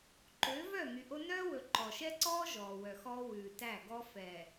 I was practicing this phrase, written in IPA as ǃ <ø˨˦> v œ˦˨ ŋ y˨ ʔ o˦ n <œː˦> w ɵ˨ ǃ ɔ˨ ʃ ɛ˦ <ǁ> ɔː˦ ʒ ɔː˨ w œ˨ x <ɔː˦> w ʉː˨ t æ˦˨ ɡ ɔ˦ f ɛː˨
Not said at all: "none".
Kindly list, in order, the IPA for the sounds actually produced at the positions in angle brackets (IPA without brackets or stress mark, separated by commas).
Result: ø˨˦, œː˦, ǀ, ɔː˦